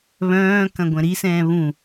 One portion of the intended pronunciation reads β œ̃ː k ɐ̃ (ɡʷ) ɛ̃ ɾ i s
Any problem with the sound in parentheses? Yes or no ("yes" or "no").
no